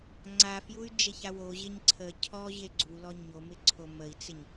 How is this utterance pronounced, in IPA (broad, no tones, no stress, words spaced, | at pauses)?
ŋ͡ǀafjuy̯ d͡ʒeçawo ʑeɲǀʰə cʰɔʑe ɡ͡ǀulɔ ɲomɪǀʰo məi̯t͡sɪɲ